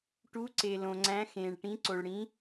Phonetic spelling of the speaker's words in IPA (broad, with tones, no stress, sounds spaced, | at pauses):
ʈ u˨˥ ǀ e˩ l õ˩ ŋ͡ǀ æ̃˨˥ x ẽː˩ ɭ ʈ ĩ˨˥ ǀ o˩ ɭ ɽ ĩ˨˥